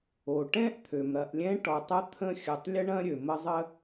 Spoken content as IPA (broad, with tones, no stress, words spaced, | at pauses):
o˩ʈɛ̃˥ʔt̪ʰø˩mɾɐ˨ʔ lʲɛ̃˦ʈɔ˨tˤə˦ t̪ʰə̃˦xʲə˨tˤlʲə˥ ɳɐ̃˥ ɾʲø˩mə˦zˤə˥